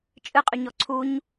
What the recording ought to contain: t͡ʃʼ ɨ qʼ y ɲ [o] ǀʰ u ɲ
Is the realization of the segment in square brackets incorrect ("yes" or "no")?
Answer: yes